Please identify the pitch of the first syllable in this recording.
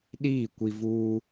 falling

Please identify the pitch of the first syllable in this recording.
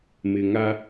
low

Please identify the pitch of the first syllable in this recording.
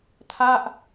falling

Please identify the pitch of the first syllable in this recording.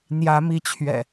rising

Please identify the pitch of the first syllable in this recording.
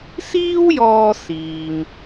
high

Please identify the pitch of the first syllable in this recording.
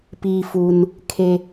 low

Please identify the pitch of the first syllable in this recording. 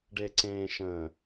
low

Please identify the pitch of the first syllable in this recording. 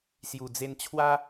low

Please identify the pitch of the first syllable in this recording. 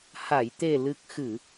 low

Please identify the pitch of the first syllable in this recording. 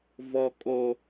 high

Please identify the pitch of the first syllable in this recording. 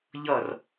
falling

